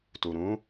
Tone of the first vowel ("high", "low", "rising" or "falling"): low